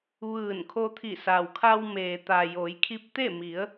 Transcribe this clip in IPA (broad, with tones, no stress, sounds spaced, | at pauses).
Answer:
ʋ ɯː˧˩ n kʰ o˧ t̪ʰ i˧˩ s a˩ w kʰ a˧ w m eː˩ t̪ a˩ j o˩˧ j kʰ i˧˥ p̚ t̪ e˥˨ m i˩˧ ə̯